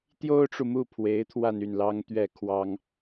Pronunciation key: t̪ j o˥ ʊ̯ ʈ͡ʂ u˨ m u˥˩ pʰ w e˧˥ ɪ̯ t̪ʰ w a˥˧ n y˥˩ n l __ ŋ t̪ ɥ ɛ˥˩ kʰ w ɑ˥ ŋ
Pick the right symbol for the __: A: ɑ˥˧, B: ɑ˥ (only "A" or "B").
B